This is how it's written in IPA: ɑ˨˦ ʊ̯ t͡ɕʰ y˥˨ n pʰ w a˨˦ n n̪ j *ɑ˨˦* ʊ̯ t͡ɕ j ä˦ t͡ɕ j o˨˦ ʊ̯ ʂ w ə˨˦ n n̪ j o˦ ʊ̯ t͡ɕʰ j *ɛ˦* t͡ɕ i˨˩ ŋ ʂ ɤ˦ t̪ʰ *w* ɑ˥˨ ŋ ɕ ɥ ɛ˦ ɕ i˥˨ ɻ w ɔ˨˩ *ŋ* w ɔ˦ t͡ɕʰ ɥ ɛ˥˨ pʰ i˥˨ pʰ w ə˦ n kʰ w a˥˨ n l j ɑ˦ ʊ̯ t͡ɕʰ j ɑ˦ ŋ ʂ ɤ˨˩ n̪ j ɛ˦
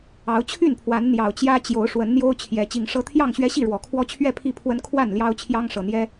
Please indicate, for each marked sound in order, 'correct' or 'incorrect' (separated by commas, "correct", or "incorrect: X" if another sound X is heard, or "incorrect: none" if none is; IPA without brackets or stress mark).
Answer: incorrect: ɑ˨˩, incorrect: ɛ˨˦, incorrect: j, incorrect: kʰ